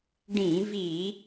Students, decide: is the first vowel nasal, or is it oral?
nasal